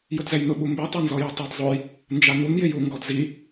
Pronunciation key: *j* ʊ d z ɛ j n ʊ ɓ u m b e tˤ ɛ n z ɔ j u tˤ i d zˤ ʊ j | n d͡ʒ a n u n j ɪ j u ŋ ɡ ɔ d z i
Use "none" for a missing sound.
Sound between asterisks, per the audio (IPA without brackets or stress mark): j